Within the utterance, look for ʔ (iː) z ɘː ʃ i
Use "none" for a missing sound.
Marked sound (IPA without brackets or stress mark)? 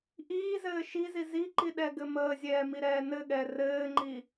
iː